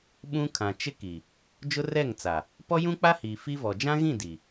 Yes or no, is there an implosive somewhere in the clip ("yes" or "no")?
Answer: yes